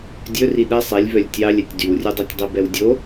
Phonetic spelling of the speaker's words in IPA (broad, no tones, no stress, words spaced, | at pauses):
dʲɵri ɗɛsˤ ilʲvœlʲ tʲɑlʲ ɛtʲdywrʲʉdˤœtʲ dˤibɛwdʲo